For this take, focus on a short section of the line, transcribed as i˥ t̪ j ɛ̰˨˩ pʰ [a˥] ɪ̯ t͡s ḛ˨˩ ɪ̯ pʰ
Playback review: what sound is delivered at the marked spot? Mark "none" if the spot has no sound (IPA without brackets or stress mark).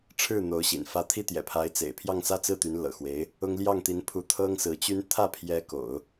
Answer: a˧˥